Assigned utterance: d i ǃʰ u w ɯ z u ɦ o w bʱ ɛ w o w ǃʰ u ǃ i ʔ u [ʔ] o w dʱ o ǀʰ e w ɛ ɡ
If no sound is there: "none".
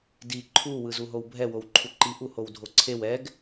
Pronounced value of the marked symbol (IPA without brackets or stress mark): h